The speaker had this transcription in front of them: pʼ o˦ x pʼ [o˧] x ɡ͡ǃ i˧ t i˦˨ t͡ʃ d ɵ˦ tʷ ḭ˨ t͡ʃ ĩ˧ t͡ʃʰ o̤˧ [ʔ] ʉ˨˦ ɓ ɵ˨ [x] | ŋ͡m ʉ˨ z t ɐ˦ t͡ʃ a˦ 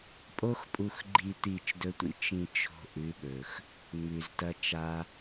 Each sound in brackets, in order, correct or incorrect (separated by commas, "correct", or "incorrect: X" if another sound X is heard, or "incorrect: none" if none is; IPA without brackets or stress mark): incorrect: u˧, correct, correct